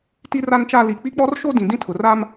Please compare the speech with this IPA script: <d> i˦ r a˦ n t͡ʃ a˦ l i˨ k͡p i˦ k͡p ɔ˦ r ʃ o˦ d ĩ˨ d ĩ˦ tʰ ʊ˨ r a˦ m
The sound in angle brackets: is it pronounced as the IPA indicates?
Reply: no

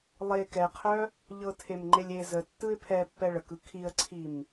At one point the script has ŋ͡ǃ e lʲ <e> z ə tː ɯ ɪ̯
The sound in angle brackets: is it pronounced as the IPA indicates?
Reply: yes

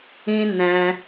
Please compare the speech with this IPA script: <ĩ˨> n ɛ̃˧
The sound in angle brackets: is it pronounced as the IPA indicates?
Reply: no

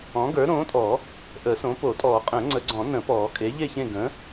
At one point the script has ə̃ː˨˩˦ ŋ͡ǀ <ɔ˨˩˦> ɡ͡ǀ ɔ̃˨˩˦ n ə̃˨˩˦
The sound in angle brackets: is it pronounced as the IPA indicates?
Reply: no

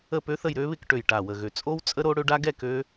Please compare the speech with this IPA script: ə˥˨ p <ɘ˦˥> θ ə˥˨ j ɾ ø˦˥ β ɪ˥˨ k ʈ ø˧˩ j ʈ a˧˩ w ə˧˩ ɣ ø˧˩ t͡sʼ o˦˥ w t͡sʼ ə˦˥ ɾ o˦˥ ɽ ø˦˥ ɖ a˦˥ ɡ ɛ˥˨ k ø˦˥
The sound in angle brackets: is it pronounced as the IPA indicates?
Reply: no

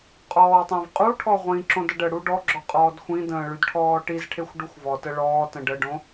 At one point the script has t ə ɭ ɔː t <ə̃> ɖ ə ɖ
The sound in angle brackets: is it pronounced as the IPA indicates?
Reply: yes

